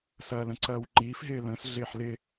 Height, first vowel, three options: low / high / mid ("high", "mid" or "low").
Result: low